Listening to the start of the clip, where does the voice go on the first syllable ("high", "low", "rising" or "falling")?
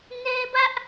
high